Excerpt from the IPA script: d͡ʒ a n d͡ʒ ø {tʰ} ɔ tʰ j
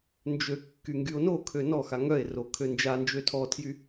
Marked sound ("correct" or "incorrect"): correct